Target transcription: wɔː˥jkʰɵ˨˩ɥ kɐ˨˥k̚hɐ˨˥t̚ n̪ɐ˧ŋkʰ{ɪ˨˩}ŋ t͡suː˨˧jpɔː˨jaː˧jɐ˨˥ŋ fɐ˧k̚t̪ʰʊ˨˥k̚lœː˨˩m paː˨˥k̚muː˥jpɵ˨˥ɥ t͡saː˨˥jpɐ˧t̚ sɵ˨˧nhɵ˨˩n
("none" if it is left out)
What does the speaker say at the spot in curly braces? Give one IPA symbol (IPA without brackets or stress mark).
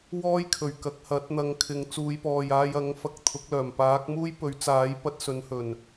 ɪ˨˧